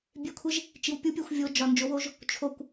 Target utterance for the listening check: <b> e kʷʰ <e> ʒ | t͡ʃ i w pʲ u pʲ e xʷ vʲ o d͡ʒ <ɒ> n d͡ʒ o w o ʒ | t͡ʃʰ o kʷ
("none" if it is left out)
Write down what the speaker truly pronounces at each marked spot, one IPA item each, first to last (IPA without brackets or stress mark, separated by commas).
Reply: bʲ, e, ɒ